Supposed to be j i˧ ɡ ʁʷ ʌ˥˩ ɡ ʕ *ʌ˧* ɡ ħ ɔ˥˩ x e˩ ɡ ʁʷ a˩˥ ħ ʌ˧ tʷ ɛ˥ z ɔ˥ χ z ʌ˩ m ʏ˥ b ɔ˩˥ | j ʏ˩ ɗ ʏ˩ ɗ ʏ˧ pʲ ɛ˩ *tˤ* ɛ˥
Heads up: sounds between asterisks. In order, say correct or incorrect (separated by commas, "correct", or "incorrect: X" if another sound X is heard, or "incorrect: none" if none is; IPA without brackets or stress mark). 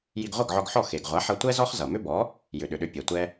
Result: incorrect: ɔ˧, incorrect: tʷ